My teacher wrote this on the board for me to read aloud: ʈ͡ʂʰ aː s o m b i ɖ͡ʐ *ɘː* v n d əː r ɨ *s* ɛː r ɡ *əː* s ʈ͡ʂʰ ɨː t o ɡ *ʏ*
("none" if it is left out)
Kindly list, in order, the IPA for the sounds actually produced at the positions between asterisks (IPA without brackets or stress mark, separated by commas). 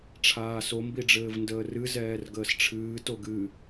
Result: ɘː, z, əː, ɨ